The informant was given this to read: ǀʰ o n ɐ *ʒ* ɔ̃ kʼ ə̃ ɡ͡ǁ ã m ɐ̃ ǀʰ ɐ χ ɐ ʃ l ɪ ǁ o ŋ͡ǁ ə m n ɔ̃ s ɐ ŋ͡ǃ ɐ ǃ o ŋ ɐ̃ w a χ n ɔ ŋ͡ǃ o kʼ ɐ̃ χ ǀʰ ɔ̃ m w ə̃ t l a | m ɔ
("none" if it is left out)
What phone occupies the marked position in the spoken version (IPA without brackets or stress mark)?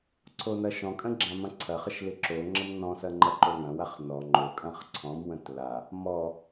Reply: ʃ